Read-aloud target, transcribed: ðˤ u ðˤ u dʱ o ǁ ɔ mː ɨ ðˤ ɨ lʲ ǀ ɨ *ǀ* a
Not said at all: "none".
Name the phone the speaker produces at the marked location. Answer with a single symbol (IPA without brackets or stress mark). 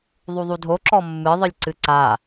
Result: ǀ